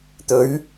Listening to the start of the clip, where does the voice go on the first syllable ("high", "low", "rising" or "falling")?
rising